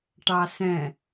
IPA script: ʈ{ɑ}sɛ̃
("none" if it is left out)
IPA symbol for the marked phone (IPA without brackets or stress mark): ɑ